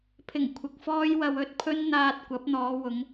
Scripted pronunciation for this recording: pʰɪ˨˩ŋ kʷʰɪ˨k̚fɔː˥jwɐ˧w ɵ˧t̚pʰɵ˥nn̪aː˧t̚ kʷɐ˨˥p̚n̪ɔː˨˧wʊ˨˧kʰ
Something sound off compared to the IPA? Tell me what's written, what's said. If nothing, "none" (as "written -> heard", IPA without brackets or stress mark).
kʰ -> ŋ